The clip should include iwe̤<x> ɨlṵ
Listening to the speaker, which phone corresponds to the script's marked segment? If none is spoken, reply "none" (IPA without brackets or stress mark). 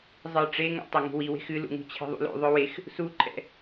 x